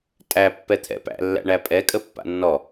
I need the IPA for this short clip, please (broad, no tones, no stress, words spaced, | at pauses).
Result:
tʼæ pːɛt̪ʰɛ̰pæ̰lːæ̰ ɳæpʼɛ kʼəpːa̰nːɔ